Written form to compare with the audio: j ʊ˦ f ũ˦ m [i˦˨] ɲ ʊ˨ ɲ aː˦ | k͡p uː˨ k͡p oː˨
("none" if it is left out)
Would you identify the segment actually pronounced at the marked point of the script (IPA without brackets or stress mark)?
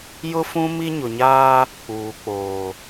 i˦